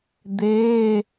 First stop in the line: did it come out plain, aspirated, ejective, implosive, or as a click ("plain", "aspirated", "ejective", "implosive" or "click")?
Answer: plain